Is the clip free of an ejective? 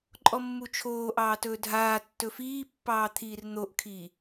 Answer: no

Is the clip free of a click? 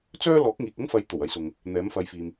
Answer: yes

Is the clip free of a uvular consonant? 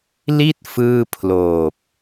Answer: yes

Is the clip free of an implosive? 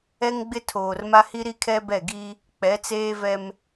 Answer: yes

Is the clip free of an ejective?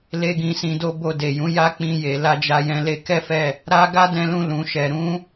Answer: yes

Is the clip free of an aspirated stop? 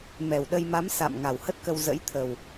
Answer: no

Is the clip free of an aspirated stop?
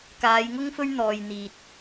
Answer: yes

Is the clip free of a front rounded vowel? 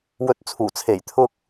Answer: yes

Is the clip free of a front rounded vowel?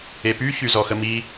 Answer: no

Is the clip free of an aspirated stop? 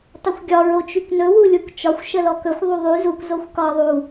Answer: yes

